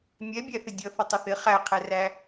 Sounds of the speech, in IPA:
mʲ ɛ bʲ æ θ ɪ dʲ ʌ θ ə tˤ ɪ θ ɪ χ æ qʰ ɛ r æ

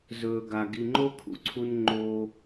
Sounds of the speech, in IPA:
z ɵː˨ ɡ a˨ ɡ i˨ ŋ͡ǃ o˦ kʰ ṵ˨ ǀʰ u˧ n ŋ͡ǃ o˧

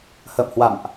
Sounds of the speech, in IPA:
h ə̰ː˧˨ m h w a̰˧˨ m ʔ

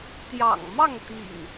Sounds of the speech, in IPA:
t̪ j ɑ̰˨˩ ŋ m ɑ˥˨ ŋ t̪ ḭ˨˩ ŋ

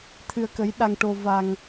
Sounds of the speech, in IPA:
t̪ʰ ɨ˧ ə̯ k ə˧˥ j ɗ a˧ ŋ ʈ o˧ v a˧ ŋ

